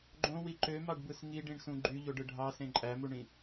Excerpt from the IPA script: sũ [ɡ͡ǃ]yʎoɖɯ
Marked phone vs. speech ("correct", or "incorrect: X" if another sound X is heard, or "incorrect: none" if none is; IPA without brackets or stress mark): correct